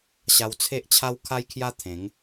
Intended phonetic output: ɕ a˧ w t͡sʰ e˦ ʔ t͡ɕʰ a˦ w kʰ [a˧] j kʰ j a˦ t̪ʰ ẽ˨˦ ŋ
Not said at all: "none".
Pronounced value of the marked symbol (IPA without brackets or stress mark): a˦